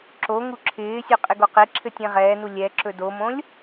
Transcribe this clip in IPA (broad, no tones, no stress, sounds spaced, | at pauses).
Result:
ǁ o ŋ u ǁʰ ɪː sʲ ɵ qʼ ɪ ɡ o q e ǁʰ ɘ tʲ ẽ ʁ ɛː n u lʲ ɛ ǁ ɵ d o m õ lʲ